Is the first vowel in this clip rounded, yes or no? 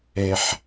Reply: no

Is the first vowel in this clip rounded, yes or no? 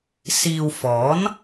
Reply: no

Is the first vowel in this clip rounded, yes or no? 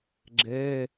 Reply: no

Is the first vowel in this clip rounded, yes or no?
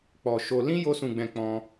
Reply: yes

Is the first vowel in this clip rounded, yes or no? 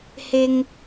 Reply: no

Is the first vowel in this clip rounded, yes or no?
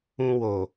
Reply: yes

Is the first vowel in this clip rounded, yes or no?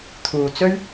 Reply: yes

